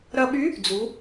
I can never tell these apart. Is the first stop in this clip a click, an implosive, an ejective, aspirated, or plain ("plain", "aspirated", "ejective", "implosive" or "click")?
implosive